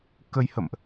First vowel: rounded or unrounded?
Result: unrounded